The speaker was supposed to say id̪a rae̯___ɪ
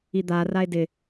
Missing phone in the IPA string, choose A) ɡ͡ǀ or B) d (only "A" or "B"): B